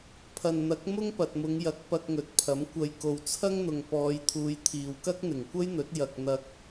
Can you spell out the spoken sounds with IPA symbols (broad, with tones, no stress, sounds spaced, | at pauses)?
pʰ ɐ˨ n n̪ ɐ˨˥ k̚ m ʊ˥ ŋ p ɐ˨ t̚ m ʊ˨˧ ŋ j ɐ˨˥ k̚ p ɐ˧ k̚ ŋ ɵ˨ t̚ pʰ ɐ˨˥ m kʷ ɐ˨ j k o˨ w t͡sʰ ɐ˥ ŋ n̪ ʊ˨ ŋ p ɔː˨˧ j t̪ʰ uː˨˧ j t̪ʰ iː˨ w k ɐ˥ k̚ n̪ ɪ˨˩ ŋ kʷ ɐ˥ j n̪ ɵ˨˥ t̚ j ɐ˧ k̚ n̪ ɐ˧ k̚